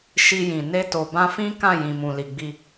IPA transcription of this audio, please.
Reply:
ʃ i˧ j ĩ˨ n e˧ t o˨ b ã˧ f ĩ˦ k ã˦˨ j ĩ˨ m ũ˨ l i˨ ɡ͡b i˧

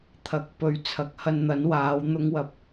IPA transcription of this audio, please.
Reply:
t̪ʰ ɐ˨˥ k̚ p ɵ˨˥ ɥ t͡sʰ ɐ˨˥ k̚ h ɐ˧ n n̪ ɐ˨˥ n w aː˨˧ w n̪ ʊ˧ ŋ w ɐ˨˥ p̚

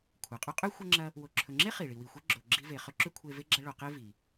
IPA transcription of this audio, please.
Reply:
kʷʰ ɐ˩ qʼ ɵ˥ qʼ ʉ˥ xʷ ɐ˥ ŋ͡ǁ ɐ˥ | w o˨ ǁʰ ɵ˨ ŋ͡ǁ e˥ χ i˩ ɭ i˨ w i˨ xʷ e˥ ɡ͡ǁ o˨ ɡ͡ǁ i˦ v e˨ χ ɵ˥ ǁ ʉ˥ kʷʰ e˦ v e˥ ɡ͡ǁ ɐ˦ ɭ o˨ q e˦ v i˩

